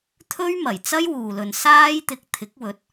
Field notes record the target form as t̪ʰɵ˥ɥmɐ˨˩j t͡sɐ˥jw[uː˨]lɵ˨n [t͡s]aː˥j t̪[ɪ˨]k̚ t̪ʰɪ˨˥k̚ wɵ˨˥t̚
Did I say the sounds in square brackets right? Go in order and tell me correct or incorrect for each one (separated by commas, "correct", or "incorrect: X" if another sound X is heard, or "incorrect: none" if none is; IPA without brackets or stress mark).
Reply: correct, incorrect: s, correct